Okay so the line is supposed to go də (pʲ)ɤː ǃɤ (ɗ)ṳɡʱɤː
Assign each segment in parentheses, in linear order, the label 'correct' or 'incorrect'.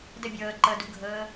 incorrect: bʲ, incorrect: d

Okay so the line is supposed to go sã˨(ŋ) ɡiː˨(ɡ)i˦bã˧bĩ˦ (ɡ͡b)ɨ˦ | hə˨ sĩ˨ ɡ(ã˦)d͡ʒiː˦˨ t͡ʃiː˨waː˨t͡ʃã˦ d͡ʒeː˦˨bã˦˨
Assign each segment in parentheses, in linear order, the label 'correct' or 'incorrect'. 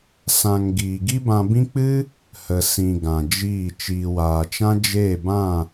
correct, correct, incorrect: k͡p, incorrect: ã˨

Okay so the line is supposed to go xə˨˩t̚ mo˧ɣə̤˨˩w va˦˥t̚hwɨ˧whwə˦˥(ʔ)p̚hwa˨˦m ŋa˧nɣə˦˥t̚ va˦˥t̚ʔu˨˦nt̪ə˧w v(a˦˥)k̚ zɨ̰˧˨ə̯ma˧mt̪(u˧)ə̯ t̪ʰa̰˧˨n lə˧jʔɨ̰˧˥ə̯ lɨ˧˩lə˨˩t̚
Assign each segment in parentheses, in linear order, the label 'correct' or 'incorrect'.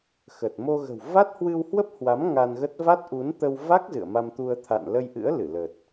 incorrect: none, correct, correct

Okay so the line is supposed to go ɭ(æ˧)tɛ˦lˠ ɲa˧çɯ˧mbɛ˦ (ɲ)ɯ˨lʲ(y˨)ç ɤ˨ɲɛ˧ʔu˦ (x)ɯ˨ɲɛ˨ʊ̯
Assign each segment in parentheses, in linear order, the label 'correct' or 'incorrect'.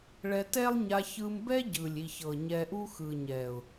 incorrect: ɛ˧, incorrect: ɟ, incorrect: i˨, correct

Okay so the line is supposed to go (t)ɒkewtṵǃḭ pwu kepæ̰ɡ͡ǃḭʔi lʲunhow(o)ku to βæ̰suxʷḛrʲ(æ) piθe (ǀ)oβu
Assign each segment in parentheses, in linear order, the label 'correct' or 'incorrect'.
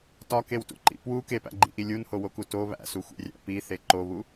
correct, correct, incorrect: æ̰, incorrect: ǃ

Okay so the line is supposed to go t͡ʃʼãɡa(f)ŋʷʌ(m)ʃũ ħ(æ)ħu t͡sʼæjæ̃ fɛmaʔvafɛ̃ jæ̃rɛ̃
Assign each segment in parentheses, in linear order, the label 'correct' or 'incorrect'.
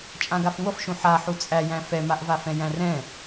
correct, incorrect: f, incorrect: a

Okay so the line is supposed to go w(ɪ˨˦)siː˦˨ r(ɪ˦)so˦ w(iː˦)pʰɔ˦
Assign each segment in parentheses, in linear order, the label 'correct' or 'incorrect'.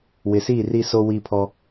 incorrect: ɪ˨, incorrect: i˦, correct

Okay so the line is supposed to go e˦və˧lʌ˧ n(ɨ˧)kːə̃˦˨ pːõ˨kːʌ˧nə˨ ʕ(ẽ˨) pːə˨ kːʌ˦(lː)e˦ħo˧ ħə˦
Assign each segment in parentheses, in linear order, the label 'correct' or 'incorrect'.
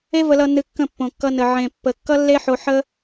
correct, correct, correct

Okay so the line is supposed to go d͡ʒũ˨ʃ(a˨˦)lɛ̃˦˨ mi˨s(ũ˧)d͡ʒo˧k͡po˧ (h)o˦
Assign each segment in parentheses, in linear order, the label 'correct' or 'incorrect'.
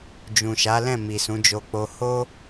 correct, incorrect: ũ˨˦, correct

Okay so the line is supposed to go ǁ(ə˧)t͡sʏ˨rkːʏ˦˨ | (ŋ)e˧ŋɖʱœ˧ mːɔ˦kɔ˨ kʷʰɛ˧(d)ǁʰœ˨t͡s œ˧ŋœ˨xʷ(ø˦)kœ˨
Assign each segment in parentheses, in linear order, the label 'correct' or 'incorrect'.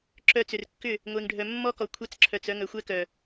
incorrect: œ˧, incorrect: ŋʷ, incorrect: t͡s, incorrect: ɛ˦

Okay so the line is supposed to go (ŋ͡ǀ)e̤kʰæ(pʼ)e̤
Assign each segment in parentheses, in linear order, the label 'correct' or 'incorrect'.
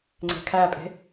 correct, correct

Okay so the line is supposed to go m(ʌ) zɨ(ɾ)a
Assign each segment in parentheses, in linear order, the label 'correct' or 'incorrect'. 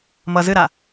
correct, correct

